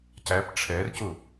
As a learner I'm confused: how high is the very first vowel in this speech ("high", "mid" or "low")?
low